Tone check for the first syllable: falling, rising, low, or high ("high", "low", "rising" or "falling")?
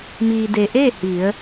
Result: low